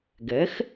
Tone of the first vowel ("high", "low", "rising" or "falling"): rising